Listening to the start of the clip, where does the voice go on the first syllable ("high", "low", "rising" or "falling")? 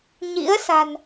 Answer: rising